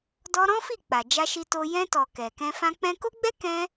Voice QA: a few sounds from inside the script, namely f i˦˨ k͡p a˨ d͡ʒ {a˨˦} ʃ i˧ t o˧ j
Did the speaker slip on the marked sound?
yes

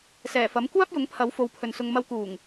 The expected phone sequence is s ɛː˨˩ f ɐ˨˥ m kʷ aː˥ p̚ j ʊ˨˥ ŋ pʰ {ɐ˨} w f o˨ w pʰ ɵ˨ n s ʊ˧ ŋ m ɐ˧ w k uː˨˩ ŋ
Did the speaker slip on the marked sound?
yes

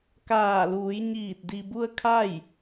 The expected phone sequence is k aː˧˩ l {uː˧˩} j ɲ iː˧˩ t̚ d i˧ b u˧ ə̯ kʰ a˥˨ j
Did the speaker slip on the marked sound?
yes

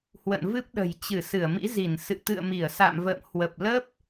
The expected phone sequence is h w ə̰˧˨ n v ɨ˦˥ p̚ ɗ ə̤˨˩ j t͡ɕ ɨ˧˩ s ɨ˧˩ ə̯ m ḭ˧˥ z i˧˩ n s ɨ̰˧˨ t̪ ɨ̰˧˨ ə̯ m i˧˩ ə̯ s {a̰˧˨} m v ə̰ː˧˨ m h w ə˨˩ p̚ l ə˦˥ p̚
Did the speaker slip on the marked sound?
no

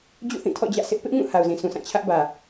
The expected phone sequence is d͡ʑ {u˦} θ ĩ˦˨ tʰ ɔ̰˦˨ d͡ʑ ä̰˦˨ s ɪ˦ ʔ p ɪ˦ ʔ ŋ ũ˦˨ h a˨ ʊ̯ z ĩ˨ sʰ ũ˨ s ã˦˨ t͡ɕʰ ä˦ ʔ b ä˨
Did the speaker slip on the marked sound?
yes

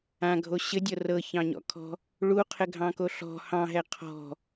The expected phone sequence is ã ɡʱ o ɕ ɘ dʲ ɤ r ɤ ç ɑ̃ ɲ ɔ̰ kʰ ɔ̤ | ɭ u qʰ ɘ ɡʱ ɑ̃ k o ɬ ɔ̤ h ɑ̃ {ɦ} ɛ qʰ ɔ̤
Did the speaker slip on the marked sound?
no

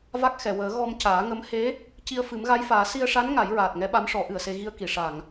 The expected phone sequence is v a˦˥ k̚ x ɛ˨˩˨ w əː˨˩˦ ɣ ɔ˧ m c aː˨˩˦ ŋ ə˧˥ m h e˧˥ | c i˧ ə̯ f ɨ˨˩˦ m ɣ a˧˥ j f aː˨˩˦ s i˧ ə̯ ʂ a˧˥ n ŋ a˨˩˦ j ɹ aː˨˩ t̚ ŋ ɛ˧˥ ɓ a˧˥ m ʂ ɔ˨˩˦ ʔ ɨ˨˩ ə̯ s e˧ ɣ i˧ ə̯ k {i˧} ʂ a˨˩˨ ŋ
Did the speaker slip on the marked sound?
yes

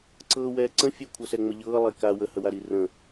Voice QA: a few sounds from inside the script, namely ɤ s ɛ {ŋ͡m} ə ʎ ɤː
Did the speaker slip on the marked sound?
no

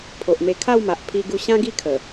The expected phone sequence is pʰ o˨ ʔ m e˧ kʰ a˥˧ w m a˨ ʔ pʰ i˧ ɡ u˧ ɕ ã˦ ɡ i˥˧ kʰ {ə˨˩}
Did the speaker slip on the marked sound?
no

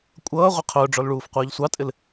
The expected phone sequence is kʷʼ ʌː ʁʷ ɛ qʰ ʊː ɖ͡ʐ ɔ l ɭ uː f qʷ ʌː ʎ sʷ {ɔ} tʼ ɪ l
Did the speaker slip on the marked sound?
yes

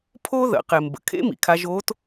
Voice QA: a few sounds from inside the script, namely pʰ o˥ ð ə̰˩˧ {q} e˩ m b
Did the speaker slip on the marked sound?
no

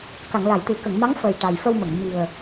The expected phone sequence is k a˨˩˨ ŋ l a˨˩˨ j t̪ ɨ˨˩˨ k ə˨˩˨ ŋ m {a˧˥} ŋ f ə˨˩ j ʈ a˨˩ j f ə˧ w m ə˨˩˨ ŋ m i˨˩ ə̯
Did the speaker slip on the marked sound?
no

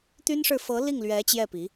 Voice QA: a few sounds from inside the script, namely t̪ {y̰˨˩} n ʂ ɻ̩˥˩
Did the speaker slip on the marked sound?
yes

